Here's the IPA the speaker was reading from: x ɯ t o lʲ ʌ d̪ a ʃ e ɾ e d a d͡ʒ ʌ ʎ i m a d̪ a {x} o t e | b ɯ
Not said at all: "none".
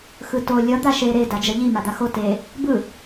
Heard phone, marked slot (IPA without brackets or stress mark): x